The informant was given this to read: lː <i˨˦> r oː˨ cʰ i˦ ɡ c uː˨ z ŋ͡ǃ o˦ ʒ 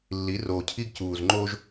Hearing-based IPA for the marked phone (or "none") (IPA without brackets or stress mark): i˨˦